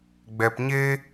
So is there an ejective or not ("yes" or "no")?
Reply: no